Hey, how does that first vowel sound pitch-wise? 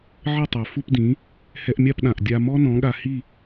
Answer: falling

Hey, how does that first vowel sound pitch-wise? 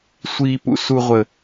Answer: high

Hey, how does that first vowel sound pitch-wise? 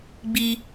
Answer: low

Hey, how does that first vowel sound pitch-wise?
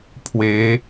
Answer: rising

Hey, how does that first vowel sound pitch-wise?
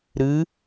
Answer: rising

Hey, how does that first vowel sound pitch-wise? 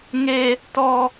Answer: low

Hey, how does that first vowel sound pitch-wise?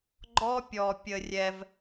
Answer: high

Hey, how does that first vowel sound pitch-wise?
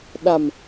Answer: low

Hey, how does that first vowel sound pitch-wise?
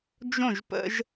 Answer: falling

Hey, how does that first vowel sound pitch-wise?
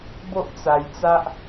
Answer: high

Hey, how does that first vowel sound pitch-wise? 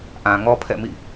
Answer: low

